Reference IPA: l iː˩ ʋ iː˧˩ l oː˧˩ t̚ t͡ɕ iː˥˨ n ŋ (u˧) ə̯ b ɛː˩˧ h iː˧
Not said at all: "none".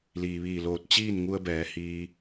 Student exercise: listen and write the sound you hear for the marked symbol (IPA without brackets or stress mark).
u˧